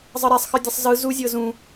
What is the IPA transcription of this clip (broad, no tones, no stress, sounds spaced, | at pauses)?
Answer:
zˤ ɤ ɾ ɛ sˤ x ɯ dʲ ɤ sˤ z ɯ z u zʲ ɤ z ũ